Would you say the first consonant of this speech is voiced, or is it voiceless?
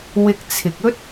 voiced